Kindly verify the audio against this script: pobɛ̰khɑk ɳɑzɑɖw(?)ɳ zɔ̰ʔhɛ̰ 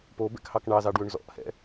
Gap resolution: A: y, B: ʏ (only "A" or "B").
B